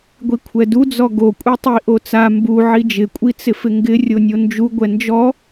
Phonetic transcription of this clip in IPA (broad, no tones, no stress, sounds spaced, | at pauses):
ɡʷ i kʷʰ ɛ d u d͡z ɔ ɡ o kʷʼ i tˤ i ʔ o t͡s a m b u ʕ i d͡ʒ ɪ kʷʼ i t͡s ɪ f ɪ ŋ ɡ ɪ rʲ o nʲ o n d͡ʒ u ɡʷ ɛ n d͡ʒ ɔ